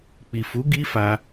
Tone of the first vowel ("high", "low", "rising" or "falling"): low